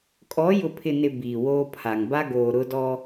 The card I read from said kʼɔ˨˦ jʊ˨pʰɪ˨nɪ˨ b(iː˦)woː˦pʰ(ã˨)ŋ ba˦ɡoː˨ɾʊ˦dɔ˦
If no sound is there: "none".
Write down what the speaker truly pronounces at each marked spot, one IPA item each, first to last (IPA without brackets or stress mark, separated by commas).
iː˨, a˨